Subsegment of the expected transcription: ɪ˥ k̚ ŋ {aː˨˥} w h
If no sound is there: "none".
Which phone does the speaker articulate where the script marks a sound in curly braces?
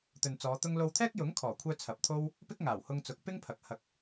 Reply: aː˨˩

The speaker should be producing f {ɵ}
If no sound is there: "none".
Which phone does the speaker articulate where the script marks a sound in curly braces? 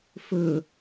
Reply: ɵ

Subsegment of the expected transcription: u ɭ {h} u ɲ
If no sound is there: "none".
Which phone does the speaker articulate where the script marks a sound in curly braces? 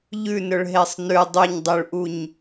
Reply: ʔ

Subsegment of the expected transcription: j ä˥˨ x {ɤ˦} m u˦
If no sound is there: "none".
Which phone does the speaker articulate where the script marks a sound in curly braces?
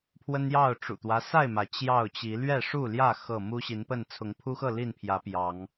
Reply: ɤ˥˨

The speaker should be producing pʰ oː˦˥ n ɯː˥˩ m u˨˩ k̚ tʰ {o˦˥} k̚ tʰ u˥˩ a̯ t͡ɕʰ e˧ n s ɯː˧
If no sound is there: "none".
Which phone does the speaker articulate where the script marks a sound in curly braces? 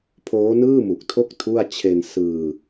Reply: o˥˩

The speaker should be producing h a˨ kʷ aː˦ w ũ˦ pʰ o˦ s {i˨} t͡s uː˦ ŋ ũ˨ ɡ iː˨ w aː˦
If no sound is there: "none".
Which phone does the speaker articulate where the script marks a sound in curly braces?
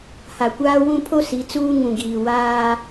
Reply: i˨˦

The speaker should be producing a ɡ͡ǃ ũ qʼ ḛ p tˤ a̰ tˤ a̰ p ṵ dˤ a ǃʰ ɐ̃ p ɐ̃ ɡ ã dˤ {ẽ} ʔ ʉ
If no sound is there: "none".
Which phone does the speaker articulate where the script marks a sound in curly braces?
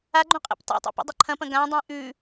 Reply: ẽ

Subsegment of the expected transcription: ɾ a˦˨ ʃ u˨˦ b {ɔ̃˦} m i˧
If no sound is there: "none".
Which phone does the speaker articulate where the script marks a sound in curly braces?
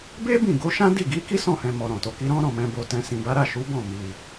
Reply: ɔ̃˦˨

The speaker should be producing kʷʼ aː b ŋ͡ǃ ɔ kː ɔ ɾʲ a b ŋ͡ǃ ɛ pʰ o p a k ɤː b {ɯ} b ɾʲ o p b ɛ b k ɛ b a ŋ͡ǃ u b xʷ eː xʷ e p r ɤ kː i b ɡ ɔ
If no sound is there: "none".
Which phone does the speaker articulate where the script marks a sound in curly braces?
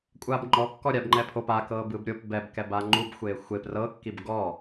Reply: ɯ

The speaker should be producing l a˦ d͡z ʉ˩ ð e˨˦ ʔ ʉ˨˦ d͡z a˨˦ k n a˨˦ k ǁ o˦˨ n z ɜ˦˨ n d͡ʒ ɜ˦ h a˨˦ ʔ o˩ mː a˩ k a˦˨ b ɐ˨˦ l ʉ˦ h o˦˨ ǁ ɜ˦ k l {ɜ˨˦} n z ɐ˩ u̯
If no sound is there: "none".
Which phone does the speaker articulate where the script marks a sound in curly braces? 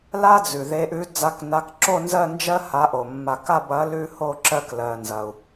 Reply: ɜ˩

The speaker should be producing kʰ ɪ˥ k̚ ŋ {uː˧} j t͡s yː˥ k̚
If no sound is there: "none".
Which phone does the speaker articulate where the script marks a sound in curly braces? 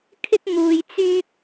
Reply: uː˧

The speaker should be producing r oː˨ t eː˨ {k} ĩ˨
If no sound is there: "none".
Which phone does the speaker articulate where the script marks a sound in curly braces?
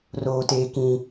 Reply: k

